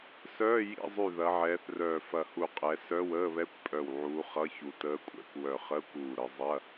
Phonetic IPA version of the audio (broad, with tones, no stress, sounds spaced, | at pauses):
s œː˧˥˧ j ḭ˧˥˧ zˤ y˧˩ ð ɐ˨˦ ʕ ɛː˨˦ θ r œː˧˩ f ɐ˧˩ h u˧˩ qʼ ɛ˨˦ s œ˧˥˧ w əː˧˥˧ β ɛ˧˥˧ kʷ pʼ œ˧˩ w ʕ uː˨˦ χ ʌ˧˥˧ ç u˨˦ t əː˧˥˧ kʷʼ ɛ̰˧˥˧ kʷ w œ˧˩ χ əː˧˥˧ kʷ uː˧˩ ɾ ə˨˦ zˤ ɐ˧˥˧